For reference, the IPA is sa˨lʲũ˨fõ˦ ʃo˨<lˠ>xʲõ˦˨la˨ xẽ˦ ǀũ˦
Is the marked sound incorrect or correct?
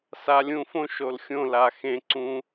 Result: incorrect